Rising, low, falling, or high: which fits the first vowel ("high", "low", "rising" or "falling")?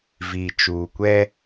low